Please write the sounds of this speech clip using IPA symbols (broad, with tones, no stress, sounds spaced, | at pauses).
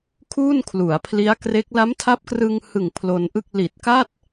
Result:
kʰ uː˥˩ n kʰ l u˩˦ a̯ pʰ l i˦˥ a̯ k r e˦˥ k̚ l a˦˥ m tʰ a˦˥ p̚ k r ɯ˧ ŋ h ɯ˨˩ ŋ pʰ l o˧ n ʔ ɯ˥˩ k̚ l i˨˩ t̚ k a˥˩ t̚